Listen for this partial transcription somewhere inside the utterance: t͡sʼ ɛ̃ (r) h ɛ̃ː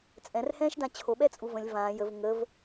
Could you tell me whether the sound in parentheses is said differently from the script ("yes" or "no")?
no